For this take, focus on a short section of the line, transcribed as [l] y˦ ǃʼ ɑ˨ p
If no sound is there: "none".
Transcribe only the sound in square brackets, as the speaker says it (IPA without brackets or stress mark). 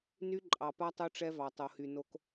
n